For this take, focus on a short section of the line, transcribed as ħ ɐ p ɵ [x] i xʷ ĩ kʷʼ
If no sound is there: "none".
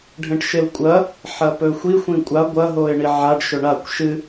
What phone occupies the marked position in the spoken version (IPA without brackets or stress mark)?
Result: xʷ